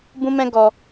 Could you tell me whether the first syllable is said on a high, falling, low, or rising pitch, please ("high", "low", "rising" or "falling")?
high